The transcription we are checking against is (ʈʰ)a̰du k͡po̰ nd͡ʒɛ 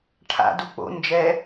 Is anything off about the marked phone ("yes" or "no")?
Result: no